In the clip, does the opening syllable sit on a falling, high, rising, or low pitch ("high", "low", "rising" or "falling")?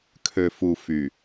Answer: low